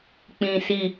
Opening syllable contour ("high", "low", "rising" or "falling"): low